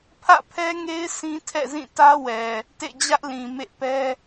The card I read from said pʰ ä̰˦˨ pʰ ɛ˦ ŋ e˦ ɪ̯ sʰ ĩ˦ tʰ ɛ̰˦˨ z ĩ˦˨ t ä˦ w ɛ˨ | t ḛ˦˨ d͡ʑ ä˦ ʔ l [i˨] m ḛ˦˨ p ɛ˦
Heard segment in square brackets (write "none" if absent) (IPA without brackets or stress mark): ĩ˨